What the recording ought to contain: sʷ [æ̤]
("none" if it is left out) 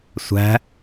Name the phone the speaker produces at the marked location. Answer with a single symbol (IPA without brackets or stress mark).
æ̤